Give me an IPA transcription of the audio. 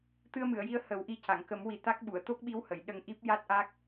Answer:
t̪ ɨ˧ ə̯ m ɨ˨˩˨ ə̯ j i˧˥ ə̯ h ə˨˩˦ w ʔ i˧˥ c a˨˩˨ ŋ k ə˨˩˦ m w i˨˩ t̪ a˦˥ k̚ ɓ u˨˩˨ ə̯ t̪ o˦˥ k̚ ɓ i˧˥ w h ə˨˩˨ j ɗ ə˧ ŋ ʔ i˦˥ p̚ j a˦˥ t̚ ʔ a˦˥ k̚

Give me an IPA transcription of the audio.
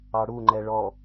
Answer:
ɑ ɽ u ŋ͡ǃ ɛ ɭ ɔ

